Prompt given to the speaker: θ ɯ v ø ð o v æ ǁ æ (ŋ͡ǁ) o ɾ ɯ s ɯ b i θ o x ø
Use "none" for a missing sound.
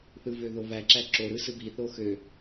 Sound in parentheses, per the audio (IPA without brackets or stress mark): ǁ